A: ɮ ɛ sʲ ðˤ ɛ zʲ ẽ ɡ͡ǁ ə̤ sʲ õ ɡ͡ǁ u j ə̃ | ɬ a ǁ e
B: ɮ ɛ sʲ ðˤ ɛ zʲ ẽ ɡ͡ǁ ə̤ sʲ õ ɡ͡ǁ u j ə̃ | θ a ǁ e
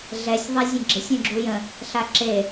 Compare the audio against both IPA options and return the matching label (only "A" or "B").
A